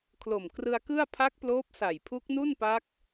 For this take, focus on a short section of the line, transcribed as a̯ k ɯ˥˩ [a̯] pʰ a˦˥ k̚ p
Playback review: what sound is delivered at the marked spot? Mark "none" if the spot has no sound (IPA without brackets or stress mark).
a̯